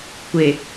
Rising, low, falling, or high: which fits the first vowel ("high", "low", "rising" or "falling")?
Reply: low